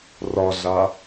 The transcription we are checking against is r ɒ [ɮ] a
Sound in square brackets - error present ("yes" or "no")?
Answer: no